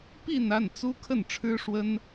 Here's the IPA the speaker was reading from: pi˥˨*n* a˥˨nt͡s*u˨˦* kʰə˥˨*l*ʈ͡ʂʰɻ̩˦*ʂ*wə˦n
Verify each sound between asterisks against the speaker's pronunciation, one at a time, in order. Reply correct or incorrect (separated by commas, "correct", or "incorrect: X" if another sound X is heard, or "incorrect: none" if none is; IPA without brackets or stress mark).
correct, incorrect: u˦, incorrect: n, correct